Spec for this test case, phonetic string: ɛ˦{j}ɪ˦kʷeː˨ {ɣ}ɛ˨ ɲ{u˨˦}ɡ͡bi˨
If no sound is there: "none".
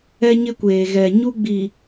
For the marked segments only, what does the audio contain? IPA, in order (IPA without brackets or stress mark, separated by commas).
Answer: ɲ, ɣ, u˦